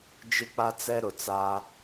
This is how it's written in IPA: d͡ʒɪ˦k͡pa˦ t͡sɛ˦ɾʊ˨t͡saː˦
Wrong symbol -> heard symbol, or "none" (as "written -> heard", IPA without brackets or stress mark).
none